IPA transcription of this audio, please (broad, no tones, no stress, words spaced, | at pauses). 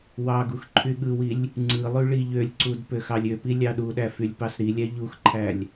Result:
wɑɡux ǃʰyɠɯwilʲ | ŋ͡ǀɯlˠy ɭiʎølʲǀud pøxɑlʲøpi lʲɑɗuɗæ fylʲpɑsɾilʲæ ʎuxǃʰælʲ